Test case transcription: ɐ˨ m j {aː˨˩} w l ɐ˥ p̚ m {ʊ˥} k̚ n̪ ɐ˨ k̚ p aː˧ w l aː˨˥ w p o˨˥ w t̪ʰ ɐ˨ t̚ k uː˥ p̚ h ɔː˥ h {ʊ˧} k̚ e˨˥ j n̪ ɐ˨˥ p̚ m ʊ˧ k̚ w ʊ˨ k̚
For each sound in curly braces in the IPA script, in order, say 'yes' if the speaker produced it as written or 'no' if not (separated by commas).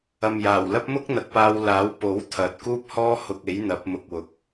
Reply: yes, yes, yes